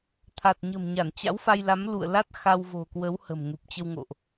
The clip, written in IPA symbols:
t̪ʰ a˨˩ t̚ ɲ ə̤˨˩ m ɲ a˧˩ n t͡ɕ a̰˧˥ w f a˧ j l a˨˦ m l ṵ˧˨ ə̯ l a˦˥ t̚ x a˧ w v o̤˨˩ k w ə˨˦ w h ə̤˨˩ m ŋ u˨˩ p̚ t͡ɕ ə˧ w ŋ o̰˧˨ ʔ

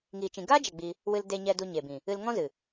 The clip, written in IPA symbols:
ŋ iː˨ t͡ʃ ĩ˨ ɡ aː˦ d͡ʒ ɛ˨ ɡ͡b i˧ | w ɨ˧ l d e˧ ɲ ɛ˧ d u˧ ɲ e˨ b ĩ˨ | ɨ˧ l ŋ ɔ̃˦ z ɨ˨

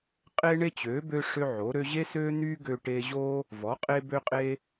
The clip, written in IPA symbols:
qʼ e˥ ɳ e˥ t͡ɕ ø˩˥ b ø˥ ʂ ø˥ ʕ o˩˥ ɾ ø˥ ʑ e˥ s ø˥ n̪ y˥ ɡ ø˥ ʈ e˥ ʑ o˥ | v ɔ˩˥ qʼ e˥ b ø˥ qʼ e˥

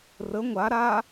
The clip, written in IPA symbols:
r ə ŋʷ a ɾ a

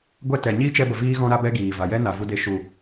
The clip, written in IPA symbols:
ɡʷ ɛ˦ t ɛ˨ ɲ iː˦ t͡ʃ ɛ˧ b ə˨ v iː˦ ɣ ɔ̃˦ ɾ a˦ b ɛ˦ ɡ iː˨ v a˨ j ɛ˦ n a˨ v u˧ d e˧ ʃ u˨

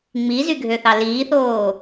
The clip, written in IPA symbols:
ŋ͡m i z y ɡʱ ø θ ɑ l iː θ oː

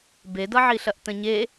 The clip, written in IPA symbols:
b e d ʌ ʕ i ɬ ɐ ʔ t ə̃ ɲ e

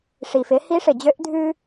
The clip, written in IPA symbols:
ʂ i˩ f ɪ˩˧ h i˧˥ ʂ ɪ˩ d͡ʑ ø˧˥ ʔ dʱ ʉ˧

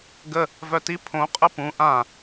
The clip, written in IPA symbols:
ɡ ə | v œ t i pʰ õ qʼ ə p ũ ʔ ã

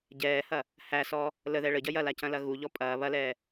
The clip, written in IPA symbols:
ɟ ɛː h ɐ | h æ s ɔ | l ə ð ɛ ɭ ə ɟ ɐ j ɐ l a c ɐ̃ l ɐ ɣ u ʎ ɔ pʼ ɐː β ɐ l ɛː

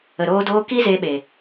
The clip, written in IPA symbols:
ə˨ ɾ oː˧ d oː˧ k i˦ z eː˧ ɓ e˨

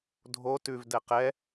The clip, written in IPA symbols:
dʱ o t ʉ v d ɛ q ɛ

